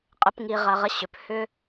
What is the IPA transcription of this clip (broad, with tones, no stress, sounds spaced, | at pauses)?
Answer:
qʼ ə˧ p ŋ i˧ ʁ ɐ˧ ʁ ə˦ ɕ ʏ˨ p h ʏ˧